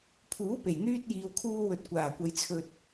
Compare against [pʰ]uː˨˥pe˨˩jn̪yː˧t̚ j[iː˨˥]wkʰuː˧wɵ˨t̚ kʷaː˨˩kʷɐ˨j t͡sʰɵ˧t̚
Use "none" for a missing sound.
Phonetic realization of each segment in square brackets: pʰ, iː˨

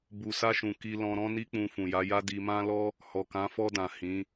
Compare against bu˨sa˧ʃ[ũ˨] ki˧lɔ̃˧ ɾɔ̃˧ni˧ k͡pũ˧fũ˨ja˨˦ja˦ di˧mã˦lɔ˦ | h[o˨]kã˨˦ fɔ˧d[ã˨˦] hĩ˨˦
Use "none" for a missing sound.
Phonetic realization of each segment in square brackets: ũ˨, ɔ˨, ã˨

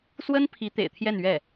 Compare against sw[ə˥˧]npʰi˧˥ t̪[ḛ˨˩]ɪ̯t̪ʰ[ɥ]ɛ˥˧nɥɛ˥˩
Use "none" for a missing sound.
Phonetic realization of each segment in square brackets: ə˥, ḛ˨˩, j

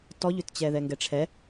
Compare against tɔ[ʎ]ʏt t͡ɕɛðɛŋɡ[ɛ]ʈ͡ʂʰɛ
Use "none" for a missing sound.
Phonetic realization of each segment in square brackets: ʎ, ɛ

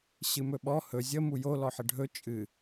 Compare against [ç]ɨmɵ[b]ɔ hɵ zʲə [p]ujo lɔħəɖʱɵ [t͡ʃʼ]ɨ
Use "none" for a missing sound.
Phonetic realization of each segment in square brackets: ɕ, ɓ, m, t͡ʃʼ

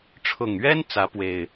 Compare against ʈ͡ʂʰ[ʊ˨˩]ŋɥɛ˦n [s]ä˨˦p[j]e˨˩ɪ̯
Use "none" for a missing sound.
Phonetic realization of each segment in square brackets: ʊ˨˩, t͡s, w

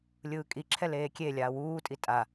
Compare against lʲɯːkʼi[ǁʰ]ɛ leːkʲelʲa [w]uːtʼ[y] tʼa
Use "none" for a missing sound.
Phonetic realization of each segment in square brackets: ǁʰ, w, i

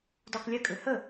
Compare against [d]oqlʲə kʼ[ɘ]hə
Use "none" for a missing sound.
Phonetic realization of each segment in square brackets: d, ɘ

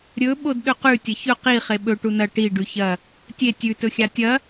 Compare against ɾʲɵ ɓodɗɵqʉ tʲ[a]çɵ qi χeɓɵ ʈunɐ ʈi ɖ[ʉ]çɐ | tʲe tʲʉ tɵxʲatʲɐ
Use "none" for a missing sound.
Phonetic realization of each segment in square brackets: ɐ, ʉ

